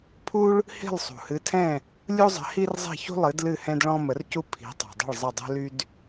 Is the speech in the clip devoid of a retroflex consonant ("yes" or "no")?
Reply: no